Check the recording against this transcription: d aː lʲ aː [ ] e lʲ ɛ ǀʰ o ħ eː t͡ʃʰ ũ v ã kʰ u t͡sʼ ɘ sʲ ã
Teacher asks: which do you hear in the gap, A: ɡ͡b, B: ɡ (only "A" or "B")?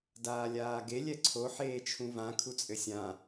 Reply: B